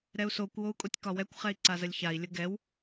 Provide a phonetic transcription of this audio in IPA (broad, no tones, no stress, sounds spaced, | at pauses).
ɾ ɛ u̯ s o kʷ w o u̯ kʼ o tʲ k ɒ w ɛ kʷ χ ɛ i̯ ǀ a z ə lʲ ç a i̯ lʲ ə ɡ ɛ w